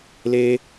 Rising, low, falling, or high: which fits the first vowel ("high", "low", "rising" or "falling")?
high